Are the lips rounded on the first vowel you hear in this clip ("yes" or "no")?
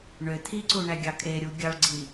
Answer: yes